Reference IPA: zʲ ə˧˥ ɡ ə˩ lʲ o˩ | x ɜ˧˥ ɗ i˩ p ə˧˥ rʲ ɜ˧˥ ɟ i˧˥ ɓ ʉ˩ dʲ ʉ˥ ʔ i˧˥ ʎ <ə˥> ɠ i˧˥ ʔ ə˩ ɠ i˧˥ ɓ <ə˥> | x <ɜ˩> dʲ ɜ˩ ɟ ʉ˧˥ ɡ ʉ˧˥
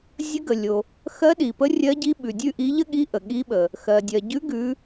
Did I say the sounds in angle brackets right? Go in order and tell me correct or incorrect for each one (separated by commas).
correct, incorrect, correct